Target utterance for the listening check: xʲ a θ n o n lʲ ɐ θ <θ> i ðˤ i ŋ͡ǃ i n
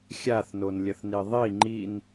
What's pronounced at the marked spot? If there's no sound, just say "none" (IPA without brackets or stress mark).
n